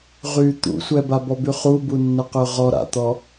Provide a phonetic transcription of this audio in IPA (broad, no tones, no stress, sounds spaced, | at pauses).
ʁ y t̪ ṵ sʷ ɛ b a b ɔ b y χ u b u nː ə q ø ʁ ɔ ɾ a̰ t̪ ɔ